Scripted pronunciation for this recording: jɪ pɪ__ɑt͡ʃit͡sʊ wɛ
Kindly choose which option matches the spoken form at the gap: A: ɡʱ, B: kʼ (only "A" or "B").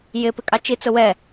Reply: B